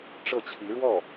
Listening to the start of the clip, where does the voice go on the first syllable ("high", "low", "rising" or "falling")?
falling